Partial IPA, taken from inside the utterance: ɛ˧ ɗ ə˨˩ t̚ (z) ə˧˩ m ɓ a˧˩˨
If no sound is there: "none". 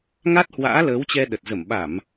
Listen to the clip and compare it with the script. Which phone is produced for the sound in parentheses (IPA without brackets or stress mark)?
z